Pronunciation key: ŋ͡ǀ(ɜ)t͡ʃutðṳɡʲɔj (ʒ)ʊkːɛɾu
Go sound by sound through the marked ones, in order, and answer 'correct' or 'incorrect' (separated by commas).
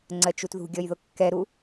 correct, incorrect